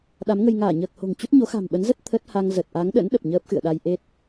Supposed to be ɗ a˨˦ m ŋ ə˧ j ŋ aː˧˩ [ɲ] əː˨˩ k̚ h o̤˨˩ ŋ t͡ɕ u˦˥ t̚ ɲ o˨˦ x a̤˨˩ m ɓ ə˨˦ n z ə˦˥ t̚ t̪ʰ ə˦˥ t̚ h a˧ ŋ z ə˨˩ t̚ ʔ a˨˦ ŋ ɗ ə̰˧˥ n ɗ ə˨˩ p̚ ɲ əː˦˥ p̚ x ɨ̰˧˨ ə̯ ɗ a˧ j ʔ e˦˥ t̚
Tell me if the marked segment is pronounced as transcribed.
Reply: yes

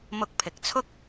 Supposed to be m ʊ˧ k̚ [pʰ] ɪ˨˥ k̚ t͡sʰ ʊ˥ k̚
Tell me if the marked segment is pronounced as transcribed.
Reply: yes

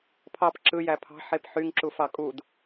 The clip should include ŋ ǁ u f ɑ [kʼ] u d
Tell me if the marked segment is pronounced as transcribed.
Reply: yes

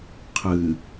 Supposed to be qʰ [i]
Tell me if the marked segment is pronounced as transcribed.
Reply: no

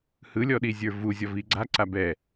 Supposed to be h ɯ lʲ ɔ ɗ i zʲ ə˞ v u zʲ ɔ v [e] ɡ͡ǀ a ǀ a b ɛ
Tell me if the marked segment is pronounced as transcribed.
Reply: no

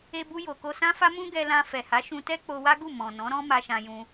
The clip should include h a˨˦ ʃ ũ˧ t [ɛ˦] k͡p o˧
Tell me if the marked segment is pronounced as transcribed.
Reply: yes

